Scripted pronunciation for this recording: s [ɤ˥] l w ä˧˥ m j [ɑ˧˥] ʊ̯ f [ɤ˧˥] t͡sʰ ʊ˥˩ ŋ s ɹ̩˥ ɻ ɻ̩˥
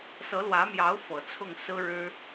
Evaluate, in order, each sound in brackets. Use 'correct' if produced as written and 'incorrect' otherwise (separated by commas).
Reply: incorrect, correct, incorrect